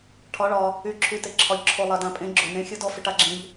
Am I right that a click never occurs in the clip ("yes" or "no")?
no